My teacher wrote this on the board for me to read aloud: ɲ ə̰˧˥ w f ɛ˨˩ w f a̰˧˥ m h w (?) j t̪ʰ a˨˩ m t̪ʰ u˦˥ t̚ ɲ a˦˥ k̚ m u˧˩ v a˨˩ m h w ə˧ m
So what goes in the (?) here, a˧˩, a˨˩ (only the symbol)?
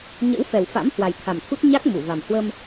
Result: a˨˩